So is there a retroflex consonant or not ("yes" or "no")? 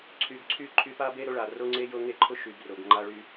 yes